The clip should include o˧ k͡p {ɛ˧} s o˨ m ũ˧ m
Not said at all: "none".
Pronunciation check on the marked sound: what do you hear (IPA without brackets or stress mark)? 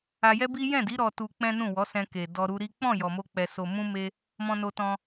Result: ɛ˨